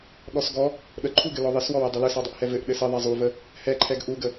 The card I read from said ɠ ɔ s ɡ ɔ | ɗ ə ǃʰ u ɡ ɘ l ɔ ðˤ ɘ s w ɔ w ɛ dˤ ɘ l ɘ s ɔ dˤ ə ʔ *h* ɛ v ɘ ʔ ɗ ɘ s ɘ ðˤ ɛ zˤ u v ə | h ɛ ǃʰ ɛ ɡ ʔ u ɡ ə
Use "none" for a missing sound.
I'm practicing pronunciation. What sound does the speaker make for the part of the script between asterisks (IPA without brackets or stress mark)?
h